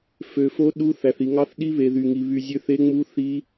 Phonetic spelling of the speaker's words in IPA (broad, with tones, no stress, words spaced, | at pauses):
fø˨fo˧˥ ɗu˧˥ θæ˨θi˨ŋɑ˧˥θɗi˧˥ βe˨ðy˨ŋi˨ βy˨zʲø˧˥θe˧˥ ŋ͡mu˧˥ θi˧˥